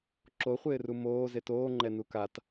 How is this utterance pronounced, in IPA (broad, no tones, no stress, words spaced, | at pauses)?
ǁoχʷɪːru moː zetoː ŋ͡ǃɛnukat